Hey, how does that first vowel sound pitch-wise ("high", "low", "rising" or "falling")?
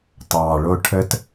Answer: low